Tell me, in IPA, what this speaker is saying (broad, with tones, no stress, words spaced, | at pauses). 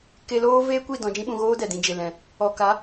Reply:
ke˧loː˦ veː˦kʷi˦˨ dɔ̃˧d͡ʒĩ˦ɓũ˧ɣoː˦ dɛ˨dĩ˧d͡ʒe˨ lɛ̃˨ | ɔ˨ ka˨˦